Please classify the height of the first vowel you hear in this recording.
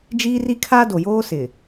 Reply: high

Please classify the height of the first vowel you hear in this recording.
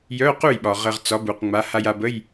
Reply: mid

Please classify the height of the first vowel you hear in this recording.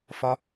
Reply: low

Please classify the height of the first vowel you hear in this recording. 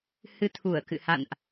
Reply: high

